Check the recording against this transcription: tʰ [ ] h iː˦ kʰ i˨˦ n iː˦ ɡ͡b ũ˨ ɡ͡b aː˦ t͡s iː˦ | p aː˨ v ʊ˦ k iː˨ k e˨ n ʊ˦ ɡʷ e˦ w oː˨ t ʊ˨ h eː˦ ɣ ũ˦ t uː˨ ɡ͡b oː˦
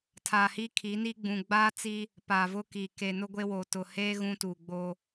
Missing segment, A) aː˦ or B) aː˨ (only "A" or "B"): B